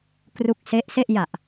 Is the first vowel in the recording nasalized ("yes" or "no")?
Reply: no